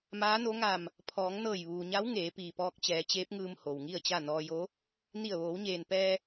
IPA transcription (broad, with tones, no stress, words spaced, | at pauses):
maː˧˥no˧˥ŋa˧˩m | pʰɔː˩˧ŋnɤː˧˩jʋuː˩ɲa˧˥w ŋeː˩˧piː˩pɔː˧k̚ t͡ɕɛː˩˧t͡ɕeː˧˥p̚ŋɯː˧m ho˩wŋi˥˨ə̯t͡ɕa˥˨ nɔː˧jo˧˥ | ni˧˩ə̯ʋoː˩˧wɲeː˩npɛː˧